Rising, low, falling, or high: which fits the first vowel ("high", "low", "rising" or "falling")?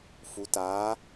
rising